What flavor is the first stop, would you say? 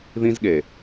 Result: implosive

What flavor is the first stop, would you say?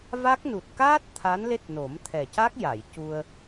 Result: plain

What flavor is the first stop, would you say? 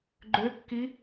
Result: click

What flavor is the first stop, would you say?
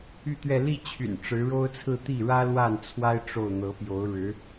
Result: plain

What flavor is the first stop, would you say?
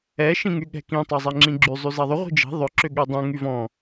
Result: implosive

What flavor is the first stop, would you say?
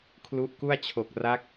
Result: aspirated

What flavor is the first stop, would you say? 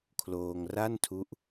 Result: aspirated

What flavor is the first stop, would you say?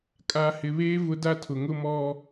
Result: ejective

